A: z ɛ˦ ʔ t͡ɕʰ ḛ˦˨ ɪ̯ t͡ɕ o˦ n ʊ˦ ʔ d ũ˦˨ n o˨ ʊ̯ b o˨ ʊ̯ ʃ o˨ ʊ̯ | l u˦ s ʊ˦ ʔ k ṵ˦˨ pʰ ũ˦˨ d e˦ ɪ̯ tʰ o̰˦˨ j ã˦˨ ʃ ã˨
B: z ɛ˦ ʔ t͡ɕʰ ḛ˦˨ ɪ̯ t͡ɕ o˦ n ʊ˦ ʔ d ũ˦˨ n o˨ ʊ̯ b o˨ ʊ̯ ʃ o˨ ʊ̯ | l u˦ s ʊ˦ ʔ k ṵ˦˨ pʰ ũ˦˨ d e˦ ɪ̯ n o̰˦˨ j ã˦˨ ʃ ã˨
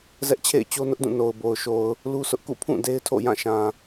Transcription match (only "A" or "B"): A